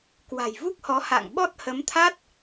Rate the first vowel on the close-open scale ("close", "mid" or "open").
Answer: open